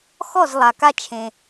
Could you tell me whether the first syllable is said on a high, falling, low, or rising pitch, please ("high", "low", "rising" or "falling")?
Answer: falling